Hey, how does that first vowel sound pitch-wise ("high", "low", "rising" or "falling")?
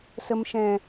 low